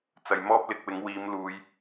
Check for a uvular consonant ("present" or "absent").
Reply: absent